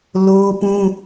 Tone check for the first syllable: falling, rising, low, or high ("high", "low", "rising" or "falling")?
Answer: high